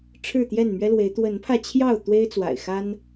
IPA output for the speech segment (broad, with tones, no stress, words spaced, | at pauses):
ʈ͡ʂʰɻ̩˥˨t̪jɛ˥˨nmɥɛ˦lwe˨˦ɪ̯ t̪wə˨˦npʰä˧ t͡ɕʰjɑ˥˨ʊ̯ t̪we˦ɪ̯t͡swa̰˨˩ɪ̯ xa˦n